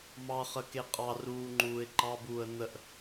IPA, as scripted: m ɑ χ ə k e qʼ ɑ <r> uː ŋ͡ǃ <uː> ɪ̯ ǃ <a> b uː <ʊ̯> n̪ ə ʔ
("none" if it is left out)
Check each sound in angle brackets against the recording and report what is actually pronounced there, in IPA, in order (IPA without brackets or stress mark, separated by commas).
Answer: r, uː, ɑ, ə̯